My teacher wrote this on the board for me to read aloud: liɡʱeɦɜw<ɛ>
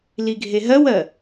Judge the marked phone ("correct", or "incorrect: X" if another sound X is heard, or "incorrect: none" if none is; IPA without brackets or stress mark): incorrect: ɜ